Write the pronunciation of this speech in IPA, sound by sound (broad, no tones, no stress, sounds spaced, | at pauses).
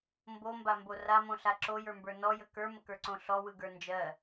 m b o m b a m b o r a m õ ɬ a ǁ o j ə˞ m b ə˞ n ɔ j ə k ə˞ m ə k ə˞ ǀ õ ɬ ɔ w ɯ ɡ ə˞ n d͡ʒ ɜ